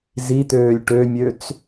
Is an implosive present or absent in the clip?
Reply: absent